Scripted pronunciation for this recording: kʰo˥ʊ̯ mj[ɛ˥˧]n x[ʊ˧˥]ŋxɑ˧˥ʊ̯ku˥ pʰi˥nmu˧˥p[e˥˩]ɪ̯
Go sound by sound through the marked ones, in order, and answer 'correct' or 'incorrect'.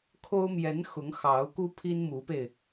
incorrect: ɛ˧˥, correct, incorrect: e˧

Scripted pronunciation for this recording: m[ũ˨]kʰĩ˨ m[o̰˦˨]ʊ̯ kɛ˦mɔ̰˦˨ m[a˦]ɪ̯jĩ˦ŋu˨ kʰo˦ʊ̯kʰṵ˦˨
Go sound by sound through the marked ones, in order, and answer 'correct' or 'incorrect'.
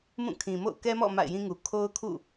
incorrect: ũ˦˨, correct, incorrect: a̰˦˨

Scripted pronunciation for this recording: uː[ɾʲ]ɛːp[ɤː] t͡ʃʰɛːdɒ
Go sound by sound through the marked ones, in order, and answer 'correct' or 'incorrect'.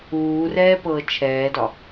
incorrect: r, correct

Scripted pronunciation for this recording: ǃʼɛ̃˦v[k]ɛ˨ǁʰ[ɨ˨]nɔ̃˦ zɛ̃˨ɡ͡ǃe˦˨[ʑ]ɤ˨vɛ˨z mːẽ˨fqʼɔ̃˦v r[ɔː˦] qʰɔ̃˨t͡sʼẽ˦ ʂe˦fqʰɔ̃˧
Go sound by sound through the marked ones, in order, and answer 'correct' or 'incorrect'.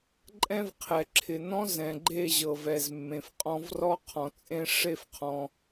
incorrect: qʰ, incorrect: ɪ˨, correct, incorrect: ɔ˦

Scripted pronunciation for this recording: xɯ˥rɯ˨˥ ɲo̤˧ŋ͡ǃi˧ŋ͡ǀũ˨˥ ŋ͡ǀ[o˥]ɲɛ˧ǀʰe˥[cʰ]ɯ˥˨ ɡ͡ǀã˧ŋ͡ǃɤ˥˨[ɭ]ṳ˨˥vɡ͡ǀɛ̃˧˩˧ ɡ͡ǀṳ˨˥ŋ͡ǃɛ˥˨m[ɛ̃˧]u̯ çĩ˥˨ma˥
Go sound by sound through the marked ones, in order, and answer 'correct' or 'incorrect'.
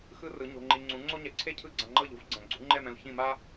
correct, correct, incorrect: ʎ, correct

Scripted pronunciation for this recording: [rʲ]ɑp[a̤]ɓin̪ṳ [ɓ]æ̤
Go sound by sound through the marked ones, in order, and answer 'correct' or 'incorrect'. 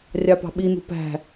correct, incorrect: ɑ̤, incorrect: p

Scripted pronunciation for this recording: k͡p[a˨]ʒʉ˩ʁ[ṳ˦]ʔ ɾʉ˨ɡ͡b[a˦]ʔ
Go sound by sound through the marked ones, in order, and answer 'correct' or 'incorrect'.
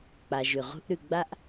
correct, correct, correct

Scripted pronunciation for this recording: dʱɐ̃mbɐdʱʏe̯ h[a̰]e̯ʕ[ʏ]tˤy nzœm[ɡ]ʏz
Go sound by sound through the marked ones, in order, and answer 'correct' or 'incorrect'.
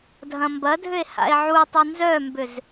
correct, incorrect: u, incorrect: b

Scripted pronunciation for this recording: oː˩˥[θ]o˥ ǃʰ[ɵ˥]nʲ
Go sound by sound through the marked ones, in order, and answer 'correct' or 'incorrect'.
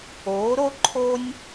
incorrect: ɾ, incorrect: o˥

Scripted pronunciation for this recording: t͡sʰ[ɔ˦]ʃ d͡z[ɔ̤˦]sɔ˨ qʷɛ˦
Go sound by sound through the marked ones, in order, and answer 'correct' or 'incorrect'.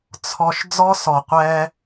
incorrect: ɔ˨, incorrect: ɔ˦

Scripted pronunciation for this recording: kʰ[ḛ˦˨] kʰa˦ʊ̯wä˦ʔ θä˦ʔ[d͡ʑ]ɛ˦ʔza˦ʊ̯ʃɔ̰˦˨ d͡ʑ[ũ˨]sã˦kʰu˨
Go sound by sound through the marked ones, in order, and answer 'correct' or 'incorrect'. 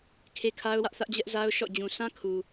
incorrect: e˦, correct, correct

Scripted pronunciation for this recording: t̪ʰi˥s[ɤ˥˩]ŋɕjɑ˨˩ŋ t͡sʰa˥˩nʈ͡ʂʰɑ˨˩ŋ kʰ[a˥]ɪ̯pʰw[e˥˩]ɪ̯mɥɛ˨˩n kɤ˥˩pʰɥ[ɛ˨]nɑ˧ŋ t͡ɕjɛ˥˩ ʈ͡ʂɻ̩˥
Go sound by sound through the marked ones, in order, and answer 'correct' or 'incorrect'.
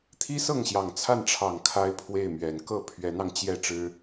correct, correct, correct, incorrect: ɛ˧˥

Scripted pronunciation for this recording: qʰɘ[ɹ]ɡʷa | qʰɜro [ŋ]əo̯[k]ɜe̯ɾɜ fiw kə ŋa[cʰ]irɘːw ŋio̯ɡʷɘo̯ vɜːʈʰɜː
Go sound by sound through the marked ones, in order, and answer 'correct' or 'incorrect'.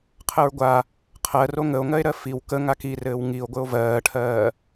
correct, correct, incorrect: ŋ, incorrect: k

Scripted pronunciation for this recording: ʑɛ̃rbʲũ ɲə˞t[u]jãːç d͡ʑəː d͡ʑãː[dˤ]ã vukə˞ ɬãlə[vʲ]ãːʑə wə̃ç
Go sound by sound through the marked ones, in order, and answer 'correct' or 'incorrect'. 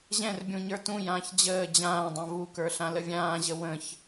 incorrect: ũ, correct, correct

